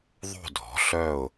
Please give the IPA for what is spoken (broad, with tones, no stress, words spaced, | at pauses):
ðˤo̤˥˧dʱɔ̤˨˥ɬœ˥˧ʊ̯